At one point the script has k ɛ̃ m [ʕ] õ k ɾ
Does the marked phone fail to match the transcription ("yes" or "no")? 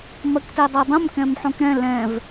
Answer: yes